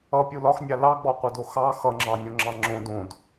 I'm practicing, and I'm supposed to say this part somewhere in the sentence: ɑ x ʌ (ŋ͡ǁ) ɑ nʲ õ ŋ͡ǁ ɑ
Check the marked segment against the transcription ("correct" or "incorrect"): correct